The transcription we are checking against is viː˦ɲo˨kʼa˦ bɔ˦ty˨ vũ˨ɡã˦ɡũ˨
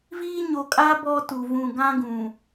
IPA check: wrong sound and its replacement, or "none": y˨ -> u˨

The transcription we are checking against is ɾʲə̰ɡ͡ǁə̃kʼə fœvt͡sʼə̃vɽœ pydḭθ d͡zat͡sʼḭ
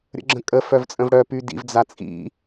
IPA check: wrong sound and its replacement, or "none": θ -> v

